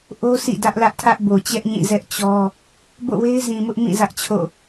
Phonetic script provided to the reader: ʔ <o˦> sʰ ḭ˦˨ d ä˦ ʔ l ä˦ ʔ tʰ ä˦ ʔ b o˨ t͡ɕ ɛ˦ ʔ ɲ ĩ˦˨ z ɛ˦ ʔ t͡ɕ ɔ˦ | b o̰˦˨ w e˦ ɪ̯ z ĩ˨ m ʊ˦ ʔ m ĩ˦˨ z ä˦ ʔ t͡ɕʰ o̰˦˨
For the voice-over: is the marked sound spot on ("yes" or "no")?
yes